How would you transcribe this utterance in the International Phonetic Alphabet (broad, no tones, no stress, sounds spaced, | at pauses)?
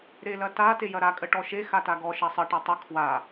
ɾ e l ɐ t a t e j ɐ ɾ a kʼ ə ʈ ɔ ʃ e x a t a ɡ ɔ ʃ ɐ sˤ ə ʈ ɐ tˤ ə kʰ w a